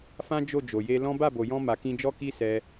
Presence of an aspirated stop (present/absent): absent